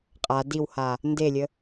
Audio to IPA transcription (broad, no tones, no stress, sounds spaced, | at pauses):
qʼ a d i w h a | n d e lʲ ə